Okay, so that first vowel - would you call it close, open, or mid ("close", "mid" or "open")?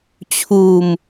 close